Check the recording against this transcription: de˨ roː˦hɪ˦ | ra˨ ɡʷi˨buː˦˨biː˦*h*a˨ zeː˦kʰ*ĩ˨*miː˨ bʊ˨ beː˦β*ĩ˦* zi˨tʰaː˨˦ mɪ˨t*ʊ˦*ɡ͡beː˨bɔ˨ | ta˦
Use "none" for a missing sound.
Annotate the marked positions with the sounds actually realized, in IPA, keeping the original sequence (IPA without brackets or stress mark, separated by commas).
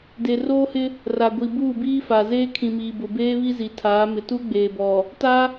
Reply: f, ĩ˨, i˦, u˦